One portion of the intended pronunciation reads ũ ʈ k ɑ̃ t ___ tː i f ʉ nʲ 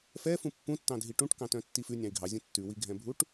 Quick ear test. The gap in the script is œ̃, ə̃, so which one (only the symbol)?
œ̃